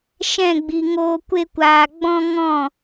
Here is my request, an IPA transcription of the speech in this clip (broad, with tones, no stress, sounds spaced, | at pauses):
ʃ ɛ̃˦˨ ɡ͡b i˨ ŋ oː˧ kʷ e˧ kʷ aː˨ ɡ͡b ɔ̃˧ ŋ ɔ̃˦˨